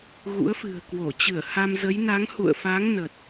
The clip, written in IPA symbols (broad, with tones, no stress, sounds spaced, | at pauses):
ɣ ṵ˧˥ ə̯ f ɨ̤˨˩ ə̯ k w o˧˩ t͡ɕ ɨ˧˩ ə̯ h a˧ m z ə˨˦ j n a˨˦ ŋ h ṵ˧˨ ə̯ f a˨˦ ŋ n ə˨˩ t̚